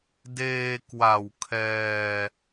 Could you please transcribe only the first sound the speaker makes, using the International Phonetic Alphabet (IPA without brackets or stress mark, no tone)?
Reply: d